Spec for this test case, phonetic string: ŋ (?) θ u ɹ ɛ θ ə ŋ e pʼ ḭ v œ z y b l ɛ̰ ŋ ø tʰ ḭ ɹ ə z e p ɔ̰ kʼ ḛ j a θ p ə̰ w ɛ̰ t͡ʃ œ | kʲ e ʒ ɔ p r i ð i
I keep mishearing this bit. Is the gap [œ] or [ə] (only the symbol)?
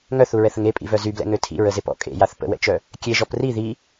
œ